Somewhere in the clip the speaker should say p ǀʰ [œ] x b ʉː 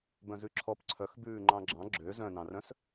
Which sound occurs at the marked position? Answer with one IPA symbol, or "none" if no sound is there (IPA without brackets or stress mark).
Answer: œ